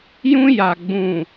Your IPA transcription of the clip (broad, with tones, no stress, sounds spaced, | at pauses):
j ũ˦ j a˨ ɡ͡b ũ˨